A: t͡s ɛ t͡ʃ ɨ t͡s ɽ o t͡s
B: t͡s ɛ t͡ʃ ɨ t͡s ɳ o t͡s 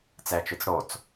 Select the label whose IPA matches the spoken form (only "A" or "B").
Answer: A